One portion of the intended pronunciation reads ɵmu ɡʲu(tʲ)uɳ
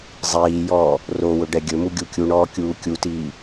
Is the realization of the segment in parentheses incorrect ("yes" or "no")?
yes